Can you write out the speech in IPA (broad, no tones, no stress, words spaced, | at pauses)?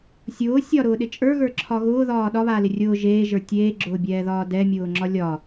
sʲʊː sʲɒɾʊːɗɪ t͡ʃʼə˞ɣə˞ǁʰɒ ɣʊːðɒː ɗɒβaːlɪ rʲʊː ʒeːʒə˞ tʲeːɡ͡ǁʊːbʲɛːðɒː dɛmʲʊːŋ͡ǁɒ lʲɒ